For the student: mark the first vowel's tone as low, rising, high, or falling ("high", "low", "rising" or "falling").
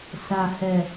low